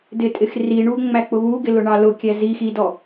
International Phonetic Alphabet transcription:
d ɪ tʼ ɪ x r i ɳ u ŋ͡m æ k͡p ʊ β u ɡ ɪ l ʊ ɳ ɑ l ʊ kʲ æ z i x i d ɔ

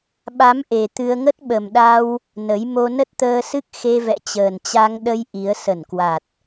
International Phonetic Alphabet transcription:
ɓ a˨˦ m ʔ e˨˩ t̪ ɨ˧ ə̯ ŋ ə˦˥ t̚ ɓ ə˨˩ m ɗ a˧ w | n ə˨˦ j m o˧ n ə˦˥ t̚ t̪ əː˧ s ɨ˦˥ k̚ x e˧ v ɛ̰˧˨ t͡ɕ əː˨˩ n t͡ɕ a˧ ŋ ɗ ə˧ j ʔ i˨˦ ə̯ s ə˧˩ n k w a˨˩ t̚

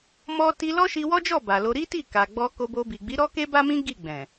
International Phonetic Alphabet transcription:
m ɔ˧ t i˧ l ɔ˦ ʃ i˧ w ɔ˦ d͡ʒ ɔ˦˨ b a˨ l o˧ ɾ i˦ t i˦˨ k a˨ ɡ͡b ɔ˧ k o˧ b o˧ b i˨ ɡ͡b i˨˦ ɾ ɔ˦ k e˦ b a˦ m ĩ˦ ɡ i˦˨ ɡ͡b ɛ̃˨

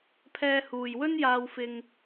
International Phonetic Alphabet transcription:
pʰ ɛː˧ h uː˨ j w ɵ˥ n j aː˧ w f ɪ˧ ŋ

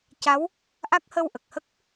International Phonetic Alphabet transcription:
c a˧˥ w | ʔ a˦˥ k̚ h ə˧ w ʔ ə˨˩ k̚ h ə˦˥ k̚

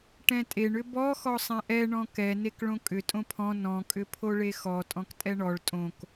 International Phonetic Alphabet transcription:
ʈ ɛ̃ tʼ e ɳ ʏ b ɔ x ɔ sˤ ɛ̃ ʔ ɛ ɳ ɔ̃ k ɛ n e k ɭ õ kʼ ʏ tʼ õ pʰ ɔ̃ n ɔ̃ kʼ ʏ pʰ o ɭ e x ɔ tʼ ɔ̃ k tʼ ɛ ɳ ɔ ɭ tʼ õ k

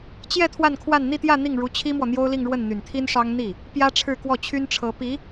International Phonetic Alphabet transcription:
t͡ɕ j ɛ˥˧ t̪ʰ w a˥˧ n kʰ w a˥˧ n n̪ i˥˧ t̪ j ä˥˧ n̪ i˥˩ ŋ ɻ u˧˥ t͡ɕʰ i˥ m w ɔ˨ n̪ j o˥ ʊ̯ l i˥˧ ŋ ɻ w ə˥˩ n n̪ y˨˩ n t̪ʰ i˥ n ʂ ɑ˥ ŋ n̪ i˥˩ | p j ä˥ ʈ͡ʂʰ ɻ̩˥˧ k w ɔ˥˩ t͡ɕʰ y˥ n ʈ͡ʂʰ ɤ˧˥ p i˧˥

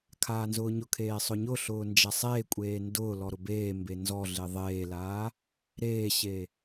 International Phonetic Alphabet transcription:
kʰ aː n z ʊː ɲ ʊ kʰ eː sˤ ʊ ɲ ʊ ɬ ʊː n d͡ʒ a sˤ eː kʷʼ eː n d ʊː l ɔ ɾ ʊ b eː m b e n z ɔ ɮ e ðˤ eː l aː | ɾ eː ɕ e

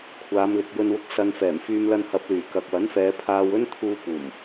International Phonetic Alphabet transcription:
kʷʰ aː˨˧ m l ɪ˨ k̚ j ɵ˧ n w ʊ˧ k̚ s ɐ˧ n f ɛː˨˩ m f yː˧ m l ɐ˧ n h ɐ˨˥ p̚ l yː˨˩ k ɐ˨ k̚ w ɐ˨˥ n f ɛː˨˧ pʰ aː˧ w ɵ˥ n t̪ʰ uː˧ p uː˨˩ m

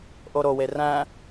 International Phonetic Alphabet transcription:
ʔ o ɾ o w e r æ̃

